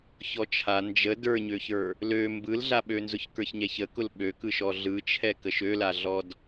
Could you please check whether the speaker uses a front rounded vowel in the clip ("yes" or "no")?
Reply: yes